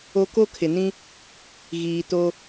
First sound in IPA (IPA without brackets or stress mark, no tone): o